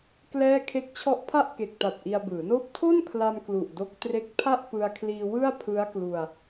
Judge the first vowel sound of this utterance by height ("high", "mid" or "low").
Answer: mid